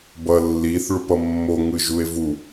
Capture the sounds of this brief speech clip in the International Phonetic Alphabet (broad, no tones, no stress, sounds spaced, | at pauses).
b ʌ lː i θ ɭ u p ʌ mː o ŋ ɯ ʒ u e̯ v u